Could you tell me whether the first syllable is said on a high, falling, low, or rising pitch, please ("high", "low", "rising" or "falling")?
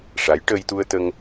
rising